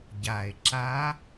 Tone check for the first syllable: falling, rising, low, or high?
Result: low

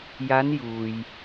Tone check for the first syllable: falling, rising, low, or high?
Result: rising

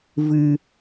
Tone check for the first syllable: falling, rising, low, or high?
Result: low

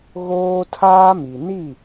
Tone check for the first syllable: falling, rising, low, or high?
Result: high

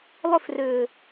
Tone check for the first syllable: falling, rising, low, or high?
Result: falling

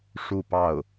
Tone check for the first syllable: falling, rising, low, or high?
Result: falling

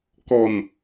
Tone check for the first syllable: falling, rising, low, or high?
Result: low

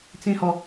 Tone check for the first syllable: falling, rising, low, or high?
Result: high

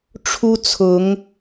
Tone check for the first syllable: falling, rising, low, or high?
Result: high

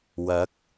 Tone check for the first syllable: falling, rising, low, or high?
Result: rising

